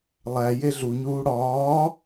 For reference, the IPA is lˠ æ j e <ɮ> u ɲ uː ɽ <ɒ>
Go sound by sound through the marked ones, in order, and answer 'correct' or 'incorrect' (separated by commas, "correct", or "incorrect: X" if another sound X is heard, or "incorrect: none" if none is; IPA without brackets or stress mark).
correct, incorrect: ɒː